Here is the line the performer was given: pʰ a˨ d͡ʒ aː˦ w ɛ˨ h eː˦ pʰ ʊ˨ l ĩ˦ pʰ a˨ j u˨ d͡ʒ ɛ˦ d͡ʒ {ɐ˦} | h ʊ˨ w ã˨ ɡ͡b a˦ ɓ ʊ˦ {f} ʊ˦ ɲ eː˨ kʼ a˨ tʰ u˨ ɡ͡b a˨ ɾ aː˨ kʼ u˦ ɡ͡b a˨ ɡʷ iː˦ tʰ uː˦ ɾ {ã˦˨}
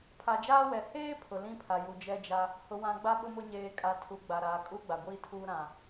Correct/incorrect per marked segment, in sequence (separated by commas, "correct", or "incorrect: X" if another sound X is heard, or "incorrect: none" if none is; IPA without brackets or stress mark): incorrect: a˦, incorrect: m, incorrect: ã˨